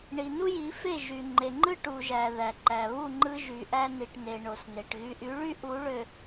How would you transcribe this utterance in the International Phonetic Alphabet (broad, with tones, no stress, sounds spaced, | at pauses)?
ɳ i˨ n u˦ j i˨˦ f e˦˨ ʒ y˨ ŋ͡ǃ e˨ ŋ͡ǃ ɯ˦ ʈ u˨ ʒ æ˨ ð æ˨ ǃ æ˨ β u˦˨ ŋ͡ǃ ɯ˦ ʒ y˨ ʔ æ˦ n i˨ ʈ n e˨ ɳ o˨ s n e˨ ʈ ɣ y˨ ʔ y˨˦ ɭ y˦ ʔ u˨˦ ɭ ø˨